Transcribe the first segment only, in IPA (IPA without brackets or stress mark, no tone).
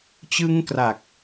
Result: t͡ɕ